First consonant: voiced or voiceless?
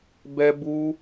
voiced